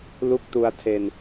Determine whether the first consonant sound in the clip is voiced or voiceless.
voiced